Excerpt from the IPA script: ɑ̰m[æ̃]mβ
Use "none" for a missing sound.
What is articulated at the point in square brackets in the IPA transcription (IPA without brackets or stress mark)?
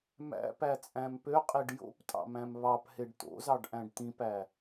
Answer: æ̃